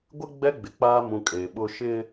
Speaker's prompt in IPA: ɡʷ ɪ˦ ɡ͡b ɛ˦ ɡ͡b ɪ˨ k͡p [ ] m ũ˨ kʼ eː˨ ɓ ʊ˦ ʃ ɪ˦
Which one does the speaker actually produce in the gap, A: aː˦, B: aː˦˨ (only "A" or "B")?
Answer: A